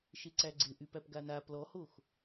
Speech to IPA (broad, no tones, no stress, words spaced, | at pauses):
ʃeǀæɡ͡ǀɪ ʔypæpɡana plɔhox